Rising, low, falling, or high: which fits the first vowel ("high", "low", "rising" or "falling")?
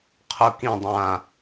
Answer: low